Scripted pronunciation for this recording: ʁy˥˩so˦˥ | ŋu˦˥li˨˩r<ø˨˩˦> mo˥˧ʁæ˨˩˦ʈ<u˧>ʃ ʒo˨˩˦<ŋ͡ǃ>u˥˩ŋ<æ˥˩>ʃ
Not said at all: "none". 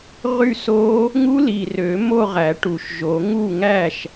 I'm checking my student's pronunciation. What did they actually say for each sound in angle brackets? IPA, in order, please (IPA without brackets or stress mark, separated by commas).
ø˨˩˦, u˨˩, ŋ, æ˥˩